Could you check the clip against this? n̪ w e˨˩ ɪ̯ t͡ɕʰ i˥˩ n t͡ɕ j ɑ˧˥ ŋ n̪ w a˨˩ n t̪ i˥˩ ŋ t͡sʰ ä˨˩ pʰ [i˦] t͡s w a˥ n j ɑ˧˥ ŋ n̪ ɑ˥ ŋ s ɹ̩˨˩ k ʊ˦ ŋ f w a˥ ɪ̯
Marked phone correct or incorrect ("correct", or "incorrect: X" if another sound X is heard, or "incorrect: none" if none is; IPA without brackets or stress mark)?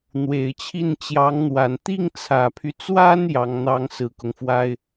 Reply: incorrect: y˦